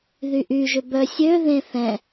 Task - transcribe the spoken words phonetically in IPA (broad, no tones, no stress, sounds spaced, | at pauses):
ð y ʔ y ʒ ʏ b œ sʲ ø ð ẽ θ ɛ̃